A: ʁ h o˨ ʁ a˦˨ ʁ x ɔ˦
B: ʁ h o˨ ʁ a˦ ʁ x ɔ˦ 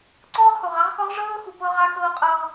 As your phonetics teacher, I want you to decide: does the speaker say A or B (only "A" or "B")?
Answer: B